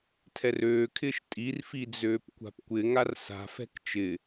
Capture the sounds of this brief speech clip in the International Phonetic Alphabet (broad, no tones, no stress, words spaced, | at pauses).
tʰɛrøːkʰɪːʃ tʼirfi d͡zøːpkʷa̤pkʷɪŋar sa̤fɛ̤k t͡ʃɪ